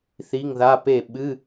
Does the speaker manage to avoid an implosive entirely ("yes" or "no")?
no